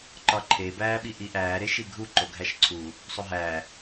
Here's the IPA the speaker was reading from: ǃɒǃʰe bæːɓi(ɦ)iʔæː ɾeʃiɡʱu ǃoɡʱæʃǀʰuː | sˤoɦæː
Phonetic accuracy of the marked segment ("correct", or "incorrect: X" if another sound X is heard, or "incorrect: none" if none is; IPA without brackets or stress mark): incorrect: ʔ